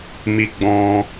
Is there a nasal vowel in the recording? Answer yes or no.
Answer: yes